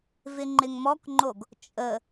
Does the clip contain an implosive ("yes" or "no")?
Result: no